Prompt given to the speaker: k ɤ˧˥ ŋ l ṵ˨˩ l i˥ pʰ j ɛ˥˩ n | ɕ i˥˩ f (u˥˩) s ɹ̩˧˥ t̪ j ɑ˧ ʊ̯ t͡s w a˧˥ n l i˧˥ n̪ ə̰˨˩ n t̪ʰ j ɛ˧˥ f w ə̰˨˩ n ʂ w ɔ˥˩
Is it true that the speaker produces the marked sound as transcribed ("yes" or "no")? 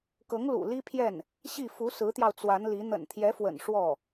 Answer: no